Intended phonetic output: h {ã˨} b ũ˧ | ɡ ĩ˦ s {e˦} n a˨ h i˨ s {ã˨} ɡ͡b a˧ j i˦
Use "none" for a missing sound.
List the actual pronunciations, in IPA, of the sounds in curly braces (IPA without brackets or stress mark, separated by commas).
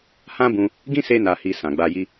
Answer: ã˦, e˧, ã˨